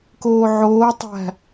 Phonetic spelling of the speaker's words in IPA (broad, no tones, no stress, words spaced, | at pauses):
koːʕoːtˤæ̤